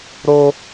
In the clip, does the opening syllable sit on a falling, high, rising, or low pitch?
high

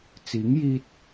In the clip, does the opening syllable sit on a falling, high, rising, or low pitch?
rising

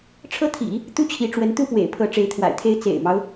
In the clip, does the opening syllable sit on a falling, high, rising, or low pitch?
high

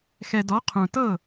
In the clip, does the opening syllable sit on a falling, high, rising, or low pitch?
low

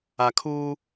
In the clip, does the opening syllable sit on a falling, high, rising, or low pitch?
low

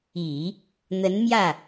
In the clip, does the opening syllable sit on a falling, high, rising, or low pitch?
low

